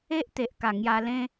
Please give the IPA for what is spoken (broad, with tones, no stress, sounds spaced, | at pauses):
e˦ ʔ t̪ e˨ ʔ k a˨˩ ŋ j a˧ l ẽ˦